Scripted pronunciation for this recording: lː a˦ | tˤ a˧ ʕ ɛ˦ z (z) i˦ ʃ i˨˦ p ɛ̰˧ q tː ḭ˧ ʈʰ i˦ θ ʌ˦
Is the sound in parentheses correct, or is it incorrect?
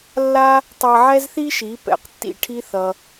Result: incorrect